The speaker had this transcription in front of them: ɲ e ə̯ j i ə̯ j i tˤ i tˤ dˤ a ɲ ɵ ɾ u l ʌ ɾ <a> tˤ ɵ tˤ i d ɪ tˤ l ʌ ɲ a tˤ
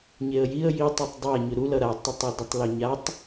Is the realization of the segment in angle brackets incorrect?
no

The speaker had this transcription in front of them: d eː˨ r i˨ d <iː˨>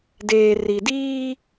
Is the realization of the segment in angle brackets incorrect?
yes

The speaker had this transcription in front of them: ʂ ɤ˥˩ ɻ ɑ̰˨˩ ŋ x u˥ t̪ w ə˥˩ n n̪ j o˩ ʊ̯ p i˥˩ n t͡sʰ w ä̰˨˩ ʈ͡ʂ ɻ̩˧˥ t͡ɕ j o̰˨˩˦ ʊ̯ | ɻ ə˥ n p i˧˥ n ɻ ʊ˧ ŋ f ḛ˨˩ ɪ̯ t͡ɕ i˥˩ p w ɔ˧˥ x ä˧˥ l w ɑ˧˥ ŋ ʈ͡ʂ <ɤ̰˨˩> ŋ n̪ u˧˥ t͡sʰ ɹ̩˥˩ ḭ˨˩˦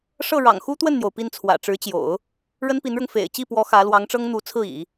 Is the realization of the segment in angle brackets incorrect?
yes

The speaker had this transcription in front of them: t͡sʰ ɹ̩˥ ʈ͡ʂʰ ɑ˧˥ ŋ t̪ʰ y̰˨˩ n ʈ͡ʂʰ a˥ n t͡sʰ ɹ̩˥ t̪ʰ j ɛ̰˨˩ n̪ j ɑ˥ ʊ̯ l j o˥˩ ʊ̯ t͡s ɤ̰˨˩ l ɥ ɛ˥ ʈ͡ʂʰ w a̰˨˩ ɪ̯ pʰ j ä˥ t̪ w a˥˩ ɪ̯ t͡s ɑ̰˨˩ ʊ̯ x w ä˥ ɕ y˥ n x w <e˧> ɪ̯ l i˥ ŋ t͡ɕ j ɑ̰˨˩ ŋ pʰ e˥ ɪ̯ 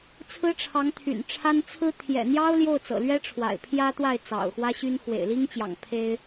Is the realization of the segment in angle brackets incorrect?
yes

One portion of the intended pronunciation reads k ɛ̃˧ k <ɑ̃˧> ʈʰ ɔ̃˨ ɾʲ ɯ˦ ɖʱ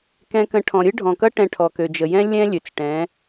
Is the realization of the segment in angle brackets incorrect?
yes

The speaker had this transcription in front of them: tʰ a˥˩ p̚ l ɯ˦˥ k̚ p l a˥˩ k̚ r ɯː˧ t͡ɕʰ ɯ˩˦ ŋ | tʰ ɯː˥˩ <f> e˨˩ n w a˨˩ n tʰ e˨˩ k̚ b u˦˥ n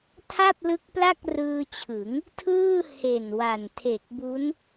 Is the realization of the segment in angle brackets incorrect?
yes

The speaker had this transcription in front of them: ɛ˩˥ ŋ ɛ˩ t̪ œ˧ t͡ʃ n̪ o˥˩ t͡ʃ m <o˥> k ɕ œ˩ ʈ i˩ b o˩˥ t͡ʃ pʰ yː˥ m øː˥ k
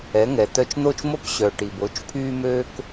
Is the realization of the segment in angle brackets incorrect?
no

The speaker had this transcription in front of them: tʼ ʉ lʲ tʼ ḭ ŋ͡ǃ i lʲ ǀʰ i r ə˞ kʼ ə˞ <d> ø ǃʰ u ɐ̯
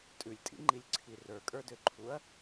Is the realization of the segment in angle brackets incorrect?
no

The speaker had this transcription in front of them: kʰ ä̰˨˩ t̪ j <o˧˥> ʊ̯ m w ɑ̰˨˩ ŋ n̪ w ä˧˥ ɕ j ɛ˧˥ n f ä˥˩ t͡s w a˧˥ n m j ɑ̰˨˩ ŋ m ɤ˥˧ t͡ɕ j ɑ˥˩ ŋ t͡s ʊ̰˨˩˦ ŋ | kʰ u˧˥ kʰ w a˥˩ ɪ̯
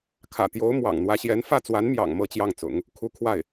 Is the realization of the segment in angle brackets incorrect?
no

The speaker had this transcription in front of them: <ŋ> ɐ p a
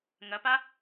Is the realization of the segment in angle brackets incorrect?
no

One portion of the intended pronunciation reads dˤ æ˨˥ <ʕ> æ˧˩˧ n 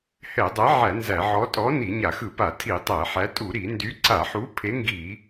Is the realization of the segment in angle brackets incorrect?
no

